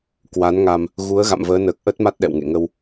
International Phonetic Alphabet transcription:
k w a˨˦ n ŋ a˧ m | ɣ u˨˦ ə̯ ɣ a̰˧˨ m v əː˨˦ n əː˨˩ k̚ ʔ ə˦˥ t̚ m a˦˥ t̚ ɗ ɛ̰˧˨ w ŋ ḛ˧˨ ŋ ə˧ w

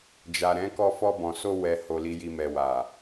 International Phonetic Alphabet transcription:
d͡ʒ a˨ ɾ ɛ̃˨˦ k ɔ˧ f ɔ˧ b ɔ̃˨ s o˧ w ɛ˨ h o˨ l i˨ j i˨ m ɛ˨ w a˨

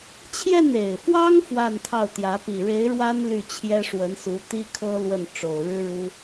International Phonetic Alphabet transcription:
t͡ɕʰ j ɛ˥˩ n e˨˩ ɪ̯ f w ɑ˥ ŋ f w a˥˧ n t̪ʰ ɑ˥˩ ʊ̯ t̪ j ä˧˥ p i˨˩ ɻ e˧˥ ɪ̯ ɻ w a˥ n l y˥˩ t͡ɕʰ j ɛ˥ ʂ w ə˧˥ n s u˧˥ t̪ i˥ kʰ ɤ˥ l w ə˥˩ n ʈ͡ʂ o˨˩ ʊ̯ ɻ ɻ̩˥ ɻ u˥

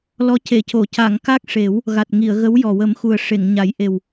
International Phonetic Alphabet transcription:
l ɔ˧˥ c e˨˩˨ c o˨˩˨ c a˨˩˨ ŋ k a˦˥ k̚ ʂ e˨˩˦ w | ɣ a˨˩ t̚ ŋ i˨˩˨ ə̯ ɣ ə˧˥ w j ɔ˨˩ w ə˨˩˦ m x u˨˩ ə̯ ʂ e˨˩˨ ŋ ɲ a˨˩˦ j ʔ e˨˩ w

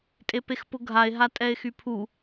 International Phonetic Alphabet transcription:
tʼ e p e x p ʊ ɡʱ a e̯ ɦ a tʼ ɛ e̯ x y pʰ u

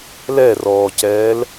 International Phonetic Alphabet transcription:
l ɛ r ɔː c ɛː l

